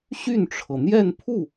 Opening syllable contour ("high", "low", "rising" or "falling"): falling